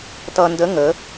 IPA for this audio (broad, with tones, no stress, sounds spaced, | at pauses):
t ʌ˧ n d ə˧˥ ŋ ə˩˧